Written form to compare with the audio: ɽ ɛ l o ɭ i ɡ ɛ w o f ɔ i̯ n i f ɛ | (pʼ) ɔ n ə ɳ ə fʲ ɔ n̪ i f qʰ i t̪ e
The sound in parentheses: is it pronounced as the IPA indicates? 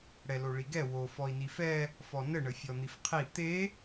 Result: no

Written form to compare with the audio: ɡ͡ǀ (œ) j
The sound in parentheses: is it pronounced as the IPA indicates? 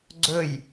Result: no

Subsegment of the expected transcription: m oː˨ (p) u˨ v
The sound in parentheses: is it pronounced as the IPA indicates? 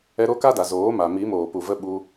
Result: yes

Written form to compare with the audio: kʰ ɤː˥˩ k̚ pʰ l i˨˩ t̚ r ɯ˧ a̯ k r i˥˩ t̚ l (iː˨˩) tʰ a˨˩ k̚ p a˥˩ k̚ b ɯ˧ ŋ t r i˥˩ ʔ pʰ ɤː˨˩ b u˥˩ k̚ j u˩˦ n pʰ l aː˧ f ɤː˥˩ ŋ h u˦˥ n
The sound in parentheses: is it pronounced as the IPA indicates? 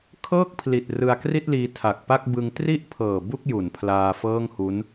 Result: no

